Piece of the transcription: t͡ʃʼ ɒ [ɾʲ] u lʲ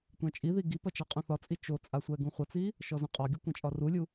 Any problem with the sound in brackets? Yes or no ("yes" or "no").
yes